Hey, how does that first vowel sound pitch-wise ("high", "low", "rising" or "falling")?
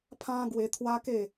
high